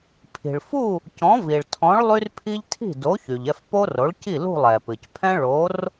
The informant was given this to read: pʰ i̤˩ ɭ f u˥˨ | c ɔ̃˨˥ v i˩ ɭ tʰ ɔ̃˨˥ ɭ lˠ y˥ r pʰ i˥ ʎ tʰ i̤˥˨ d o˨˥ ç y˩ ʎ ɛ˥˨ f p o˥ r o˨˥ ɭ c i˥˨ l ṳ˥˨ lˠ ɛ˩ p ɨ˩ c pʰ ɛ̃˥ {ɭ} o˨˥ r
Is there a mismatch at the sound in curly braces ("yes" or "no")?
no